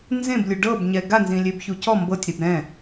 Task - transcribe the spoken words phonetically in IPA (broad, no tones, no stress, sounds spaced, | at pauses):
n z ẽ b lʲ u ɖ ɤ b ɲ ɛ ɡ a n z ĩ lʲ e b ç u c ɔ m b ɤ tʲ ɾ i b ɾ ɛ̃